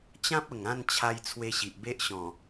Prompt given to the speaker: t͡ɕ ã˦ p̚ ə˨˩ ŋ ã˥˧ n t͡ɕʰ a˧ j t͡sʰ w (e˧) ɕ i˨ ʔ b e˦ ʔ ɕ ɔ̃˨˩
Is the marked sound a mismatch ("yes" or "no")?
no